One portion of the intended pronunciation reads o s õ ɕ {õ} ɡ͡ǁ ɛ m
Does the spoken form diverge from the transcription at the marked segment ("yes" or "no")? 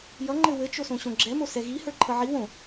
no